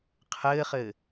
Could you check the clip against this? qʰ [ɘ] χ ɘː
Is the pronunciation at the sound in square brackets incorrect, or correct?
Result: incorrect